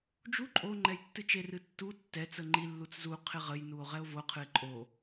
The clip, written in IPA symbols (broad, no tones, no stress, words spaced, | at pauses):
d͡ʒu ǃʼo ŋ͡ǃɛjtːɨt͡ʃerɨ tːu tːɛ t͡səŋ͡ǃilːut͡s zu qʰɪʁəjnuo̯ ʁɛo̯voqʰɨe̯ ǃʼo